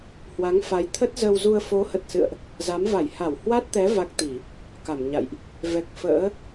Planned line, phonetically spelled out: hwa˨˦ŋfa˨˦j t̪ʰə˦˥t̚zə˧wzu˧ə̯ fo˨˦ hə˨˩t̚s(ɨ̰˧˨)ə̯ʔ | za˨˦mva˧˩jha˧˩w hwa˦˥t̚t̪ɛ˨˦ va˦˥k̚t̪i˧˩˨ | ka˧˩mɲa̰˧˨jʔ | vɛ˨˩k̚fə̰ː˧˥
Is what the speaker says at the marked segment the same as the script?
yes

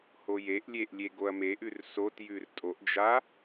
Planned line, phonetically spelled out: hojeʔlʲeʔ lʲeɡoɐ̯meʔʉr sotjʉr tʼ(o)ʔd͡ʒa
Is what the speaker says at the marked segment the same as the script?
yes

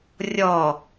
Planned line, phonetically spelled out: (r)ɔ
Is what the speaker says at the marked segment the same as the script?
no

